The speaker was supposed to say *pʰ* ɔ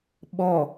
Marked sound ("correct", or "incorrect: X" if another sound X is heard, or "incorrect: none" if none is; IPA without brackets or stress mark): incorrect: ɓ